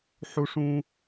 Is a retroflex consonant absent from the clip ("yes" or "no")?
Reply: no